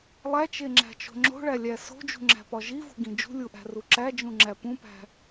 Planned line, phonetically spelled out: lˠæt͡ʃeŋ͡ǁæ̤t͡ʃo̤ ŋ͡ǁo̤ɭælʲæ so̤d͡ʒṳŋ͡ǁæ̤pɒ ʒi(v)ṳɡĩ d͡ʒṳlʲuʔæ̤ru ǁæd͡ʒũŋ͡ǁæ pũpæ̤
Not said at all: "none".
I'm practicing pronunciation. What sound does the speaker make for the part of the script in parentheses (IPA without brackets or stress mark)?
v